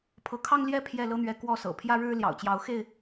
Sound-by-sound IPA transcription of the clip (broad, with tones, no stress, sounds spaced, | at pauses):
pʰ ɤ˨˦ kʰ ɑ˦ ŋ l j ɛ˥˨ pʰ j ɛ˥˨ l ɤ˦ n̪ ɥ ɛ˨˦ k w ɔ˥˨ s ɤ̰˨˩ pʰ j ä˦ ɻ ɻ̩˦ l j ɑ̰˨˩ ʊ̯ t͡ɕ j ɑ˨˦ ʊ̯ x e˥˨ ɪ̯